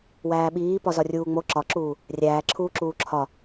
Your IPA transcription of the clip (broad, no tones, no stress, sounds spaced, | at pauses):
w æː ɓ iː p ɒ z ɒ rʲ uː ŋ͡m o ǁ ɒ ǁ uː | rʲ æː ǁʰ uː ǁ uː ǁʰ ɒ